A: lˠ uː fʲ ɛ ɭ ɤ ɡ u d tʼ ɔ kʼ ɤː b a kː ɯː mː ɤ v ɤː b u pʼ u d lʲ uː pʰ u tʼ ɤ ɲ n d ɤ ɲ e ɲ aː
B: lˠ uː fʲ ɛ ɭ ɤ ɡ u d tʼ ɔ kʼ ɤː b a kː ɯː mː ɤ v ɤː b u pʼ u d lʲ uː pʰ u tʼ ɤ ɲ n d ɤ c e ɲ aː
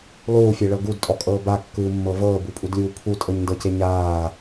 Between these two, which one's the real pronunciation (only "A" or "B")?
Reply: B